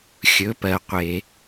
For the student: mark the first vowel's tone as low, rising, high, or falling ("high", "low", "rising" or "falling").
rising